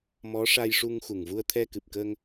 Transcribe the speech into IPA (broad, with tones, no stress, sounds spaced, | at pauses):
m ɔ˧˥ ʂ a˧ j ʂ u˧ ŋ x u˨˩ ŋ v u˧ ə̯ t̪ʰ ɛ˧ k ɨ˨˩ p̚ k ə˧ ŋ